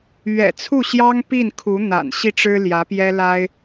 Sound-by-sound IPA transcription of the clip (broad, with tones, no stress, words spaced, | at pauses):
ɥɛ̰˨˩t͡sʰu˥˩ɕjɑ˥ŋ pi˥˩nkʰu˧˥ n̪a̰˨˩nɕi˥˩ʈ͡ʂɻ̩˥ljä˧˥ pjɛ˥la˥ɪ̯